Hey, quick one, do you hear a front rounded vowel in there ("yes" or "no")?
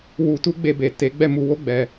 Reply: no